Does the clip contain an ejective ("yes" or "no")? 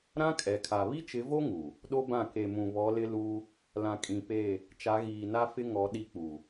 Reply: yes